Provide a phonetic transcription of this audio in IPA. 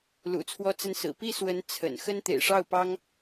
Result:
l ṵ˨˩ t͡sʰ w ɔ˥ t͡s ə˥ n s ɹ̩˨˩ p i˥˩ s w ə˧˥ n t͡sʰ ə̰˨˩ n x ə˥ n t̪ ḛ˨˩ ɪ̯ ʂ ɑ˥˩ ʊ̯ p ɑ˥ ŋ

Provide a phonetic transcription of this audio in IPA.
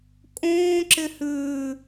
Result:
kʼ õː ǁ ɪ h ʉː

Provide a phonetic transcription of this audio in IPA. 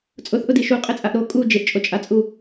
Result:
t͡sʼ ʊ θ ʔ ʊ d i ʃ u qʼ ɪ t͡sʼ a ʔ ɾ o kʼ u d͡ʒ ɪ ʔ t͡ʃʼ o t͡ʃʼ a t͡sʼ u

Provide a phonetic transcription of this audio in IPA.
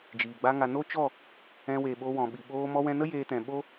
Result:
d͡ʒ iː˨ ɡ͡b a˦ ŋ a˧ n o˦ t͡ʃ ɔ˦˨ | ɛ̃˧ w e˨ ɓ o˧ w ɔ̃˨ ɓ i˨ ɓ oː˧ m ɔ˧ w ɛ̃˧ n ə˦ j eː˧ t ɛ̃˨ ɓ o˦

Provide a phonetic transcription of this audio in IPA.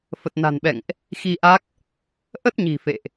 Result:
f ə˨˩ t̚ n a̤˨˩ n ɓ ɛ̰˧˨ ŋ ʔ | x i˧ ʔ a˦˥ k̚ | ʔ ə˦˥ t̚ ɲ i̤˨˩ f ḛ˧˨ ʔ

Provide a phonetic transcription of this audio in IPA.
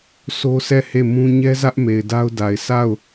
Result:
sʰ o˦ s ɛ˦˨ h e˦˨ m ũ˦ ɲ ɛ˦ z ä˦ ʔ m e˨ ɪ̯ d a˦ ʊ̯ d a˨ ɪ̯ s a˦˨ ʊ̯

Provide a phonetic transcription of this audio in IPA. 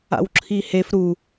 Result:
a̰ w ǁʰ i h e f ɾ u

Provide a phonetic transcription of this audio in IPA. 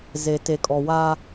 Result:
z e˨ t e˨ kʼ ɔ˨ w a˦

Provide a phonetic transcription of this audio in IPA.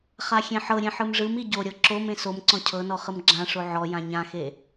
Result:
χ a xʲ ẽ ħ ɤ ɾʲ ẽ ħ ɯ m ʐ ɯ m i ɟ o ɾʲ ɤ ǁ o m ẽ s o m ǀ ɔ̃ cʰ ɤ n ɔ χ ɯ m ɡ͡ǁ ã ʂ o ʕ ɔ j ã ɲ ã x e

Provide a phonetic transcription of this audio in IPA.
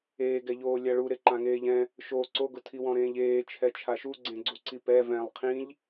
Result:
eː ɡ ɛ ʎ oː lʲ a ɭ u ɾ e ǃ ã ŋ eː ʎ ɛ̃ | ʃ o ǀ o ɡ ʊ tʰ i w ɔ̃ ɾ ẽː ʎ eː t͡ʃʰ ɛ t͡ʃʰ a ʃ u ɡ͡ǀ ẽ ɡ͡ǀ u ǀ i p ɛ v ɛ̃ lˠ qʰ ĩ ʎ

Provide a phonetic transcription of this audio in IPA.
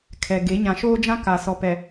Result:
kʰ ɛ˨ ɡ e˨˦ ɲ ã˨ ʃ oː˦ d͡ʒ ã˦ k a˨ s ɔ˨ p ɛ˨

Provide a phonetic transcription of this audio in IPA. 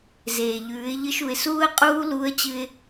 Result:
z eː˩ ʎ ʉː˩˧ ɪ̯ ʎ ɨ˧ ʃ u˩ ɪ̯ s uː˥ ə̯ qʼ uː˥ l u˧˥ ə̯ t͡ɕ ɨ˧ ɪ̯

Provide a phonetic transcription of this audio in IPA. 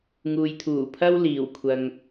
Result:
ŋ uː˨ j t̪ʰ uː˨˩ pʰ ɐ˥ w l iː˨˩ w kʷʰ ɐ˨ ŋ

